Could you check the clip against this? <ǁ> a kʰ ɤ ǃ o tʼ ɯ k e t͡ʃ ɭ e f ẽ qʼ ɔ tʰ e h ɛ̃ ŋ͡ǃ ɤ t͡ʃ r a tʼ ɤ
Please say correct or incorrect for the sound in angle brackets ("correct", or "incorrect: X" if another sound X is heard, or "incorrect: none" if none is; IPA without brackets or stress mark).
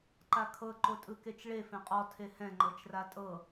incorrect: ǃ